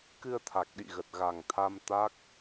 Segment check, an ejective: absent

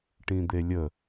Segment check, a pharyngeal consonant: absent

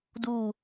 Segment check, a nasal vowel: absent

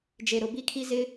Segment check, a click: absent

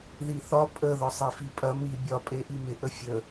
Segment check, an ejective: present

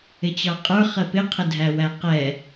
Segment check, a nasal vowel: absent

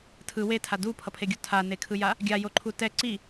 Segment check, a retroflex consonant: absent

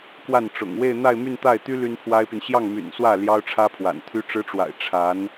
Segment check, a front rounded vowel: present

